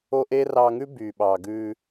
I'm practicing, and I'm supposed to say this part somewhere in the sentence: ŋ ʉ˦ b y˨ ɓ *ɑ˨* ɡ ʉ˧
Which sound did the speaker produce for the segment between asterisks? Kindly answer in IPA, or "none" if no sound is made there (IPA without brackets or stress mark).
ɑ˨